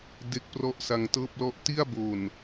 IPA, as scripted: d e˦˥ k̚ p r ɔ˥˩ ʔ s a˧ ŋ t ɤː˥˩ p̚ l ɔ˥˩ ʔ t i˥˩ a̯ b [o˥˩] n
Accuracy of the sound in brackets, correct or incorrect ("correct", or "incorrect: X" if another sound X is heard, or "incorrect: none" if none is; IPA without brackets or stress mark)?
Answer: incorrect: o˨˩